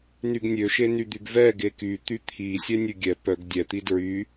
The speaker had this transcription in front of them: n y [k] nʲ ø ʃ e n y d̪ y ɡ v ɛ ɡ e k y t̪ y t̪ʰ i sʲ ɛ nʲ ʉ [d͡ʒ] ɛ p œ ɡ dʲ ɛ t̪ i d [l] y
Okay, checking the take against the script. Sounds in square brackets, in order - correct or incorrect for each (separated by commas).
incorrect, incorrect, incorrect